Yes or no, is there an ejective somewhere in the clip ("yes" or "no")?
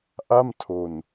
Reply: no